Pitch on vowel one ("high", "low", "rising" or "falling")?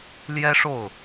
high